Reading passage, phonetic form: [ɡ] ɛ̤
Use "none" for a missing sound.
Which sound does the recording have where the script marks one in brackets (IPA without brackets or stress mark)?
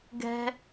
ɡ